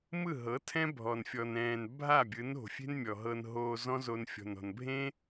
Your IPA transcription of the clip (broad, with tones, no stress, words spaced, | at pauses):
mɯ˦˨ɦɤ˨˦ tʰɛ̃˦bʱɔ˨n fʲɔ˨nɛ̃ː˨n bʱa˦˨bʲɯ˨˦no̤˨fʲe̤˦n mʲɔ˨ɦɤ˧n ɦoː˧zɔ̃˦ zo˧nfʲɔ̤˨nɔ̤˨n bʱẽ˦